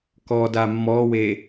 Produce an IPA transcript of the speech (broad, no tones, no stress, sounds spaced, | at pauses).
k ɔ d a mː ɔ w e